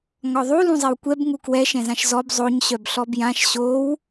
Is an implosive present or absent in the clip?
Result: absent